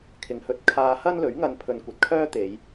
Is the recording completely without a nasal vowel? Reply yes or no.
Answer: yes